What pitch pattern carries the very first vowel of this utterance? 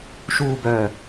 falling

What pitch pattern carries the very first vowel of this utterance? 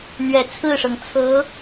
low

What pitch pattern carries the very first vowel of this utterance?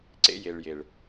high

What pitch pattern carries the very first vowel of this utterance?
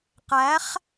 rising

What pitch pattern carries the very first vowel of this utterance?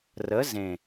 rising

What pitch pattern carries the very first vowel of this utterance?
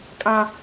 high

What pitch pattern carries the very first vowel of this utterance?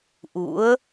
rising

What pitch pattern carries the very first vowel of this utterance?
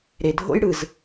low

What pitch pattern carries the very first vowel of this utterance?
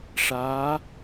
rising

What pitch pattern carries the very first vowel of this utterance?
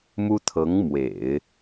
high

